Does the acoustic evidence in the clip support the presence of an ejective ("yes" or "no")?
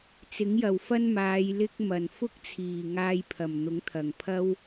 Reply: no